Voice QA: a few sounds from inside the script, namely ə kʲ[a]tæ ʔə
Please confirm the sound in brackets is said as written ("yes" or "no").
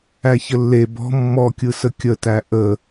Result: no